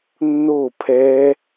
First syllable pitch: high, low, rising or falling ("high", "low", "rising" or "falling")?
falling